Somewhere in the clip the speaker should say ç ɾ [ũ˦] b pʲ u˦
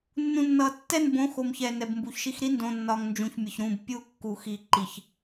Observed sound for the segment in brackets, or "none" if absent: ũ˦˨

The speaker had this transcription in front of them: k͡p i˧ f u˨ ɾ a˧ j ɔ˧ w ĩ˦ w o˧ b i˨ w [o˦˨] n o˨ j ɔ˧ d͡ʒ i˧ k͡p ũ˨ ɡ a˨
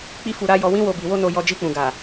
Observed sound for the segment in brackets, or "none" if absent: o˧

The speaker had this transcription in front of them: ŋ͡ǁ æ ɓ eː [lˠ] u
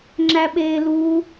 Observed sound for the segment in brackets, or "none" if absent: l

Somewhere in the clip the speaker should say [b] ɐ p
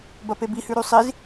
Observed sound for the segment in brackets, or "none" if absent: b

